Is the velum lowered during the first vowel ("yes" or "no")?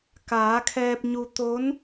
no